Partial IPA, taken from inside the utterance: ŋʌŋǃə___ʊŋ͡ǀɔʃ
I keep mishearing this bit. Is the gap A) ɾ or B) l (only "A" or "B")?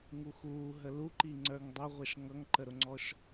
A